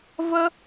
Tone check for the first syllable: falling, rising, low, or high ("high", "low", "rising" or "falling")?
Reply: high